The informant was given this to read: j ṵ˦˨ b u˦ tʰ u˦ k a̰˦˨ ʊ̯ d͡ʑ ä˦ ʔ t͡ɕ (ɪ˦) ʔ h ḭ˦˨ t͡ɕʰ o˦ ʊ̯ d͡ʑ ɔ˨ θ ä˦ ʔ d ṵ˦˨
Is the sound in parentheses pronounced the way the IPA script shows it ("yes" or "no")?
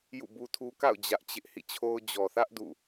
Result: yes